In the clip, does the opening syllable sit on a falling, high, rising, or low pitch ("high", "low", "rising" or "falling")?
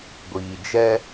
low